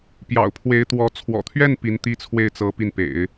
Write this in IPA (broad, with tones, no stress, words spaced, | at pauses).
pjɑ̰˨˩ʊ̯pʰwe˧˥ɪ̯t̪wɔ˧˥ t͡sʰwɔ̰˨˩t̪ʰɥɛ˥˩n pi˧˥nt̪i˥˧t͡sʰwe˥˩ɪ̯ t͡sɤ˥pi˥˩n pḛ˨˩˦ɪ̯